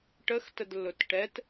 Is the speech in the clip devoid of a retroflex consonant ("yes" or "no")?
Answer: no